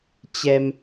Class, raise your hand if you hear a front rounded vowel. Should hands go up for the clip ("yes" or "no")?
no